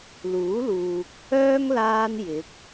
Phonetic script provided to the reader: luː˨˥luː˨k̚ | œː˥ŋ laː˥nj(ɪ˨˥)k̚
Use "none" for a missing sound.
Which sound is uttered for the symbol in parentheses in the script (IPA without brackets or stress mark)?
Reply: ɪ˨˥